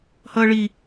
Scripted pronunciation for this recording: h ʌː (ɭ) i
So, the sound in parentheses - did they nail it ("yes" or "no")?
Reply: yes